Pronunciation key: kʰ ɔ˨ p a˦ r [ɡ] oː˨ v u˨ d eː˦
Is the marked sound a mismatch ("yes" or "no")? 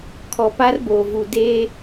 yes